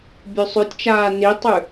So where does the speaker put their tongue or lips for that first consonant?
lips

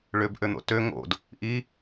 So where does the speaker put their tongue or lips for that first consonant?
retroflex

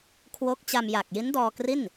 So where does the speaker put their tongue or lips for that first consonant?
velum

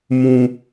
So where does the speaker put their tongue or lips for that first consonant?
lips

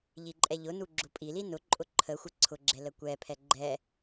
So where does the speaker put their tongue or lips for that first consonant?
palate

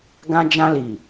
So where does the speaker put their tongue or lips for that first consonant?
velum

